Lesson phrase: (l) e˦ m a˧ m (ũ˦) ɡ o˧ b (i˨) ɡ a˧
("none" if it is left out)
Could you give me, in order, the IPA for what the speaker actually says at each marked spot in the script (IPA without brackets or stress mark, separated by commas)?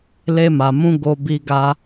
l, ũ˦, i˧